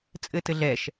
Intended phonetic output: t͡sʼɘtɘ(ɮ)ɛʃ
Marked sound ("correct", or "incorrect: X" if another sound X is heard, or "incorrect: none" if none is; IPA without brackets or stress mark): correct